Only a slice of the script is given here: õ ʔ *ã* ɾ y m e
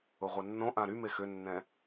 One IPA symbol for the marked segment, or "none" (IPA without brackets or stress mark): ã